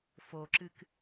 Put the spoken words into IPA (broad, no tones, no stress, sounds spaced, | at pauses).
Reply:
f o ǁ ɨ k